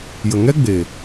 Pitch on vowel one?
low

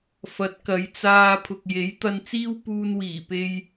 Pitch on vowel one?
rising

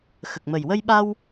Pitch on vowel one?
low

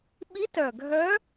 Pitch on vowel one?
rising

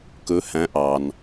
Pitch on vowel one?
rising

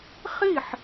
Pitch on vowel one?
falling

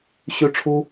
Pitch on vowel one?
high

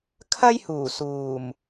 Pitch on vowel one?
high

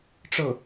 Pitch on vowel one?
falling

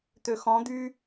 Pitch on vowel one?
low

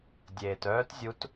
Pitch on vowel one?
low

